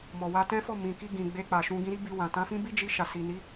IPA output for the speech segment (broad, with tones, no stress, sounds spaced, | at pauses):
m ɔ˨ w a˧ t ɛ̃˦ f ɔ˦˨ m ĩ˨ k i˧ ɡ ĩ˨ ɡ͡b e˧ k͡p a˨ ʃ ũ˧ ɡ ĩ˧ ɾ i˦ b i˧ w ã˨ t ã˨˦ f ĩ˦ b i˦ d͡ʒ i˧ ʃ a˨ s i˨ n i˨˦